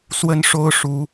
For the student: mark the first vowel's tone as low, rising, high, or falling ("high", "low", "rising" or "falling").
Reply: high